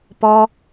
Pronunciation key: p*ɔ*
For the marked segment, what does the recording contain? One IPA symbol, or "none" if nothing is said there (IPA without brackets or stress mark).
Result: ɔ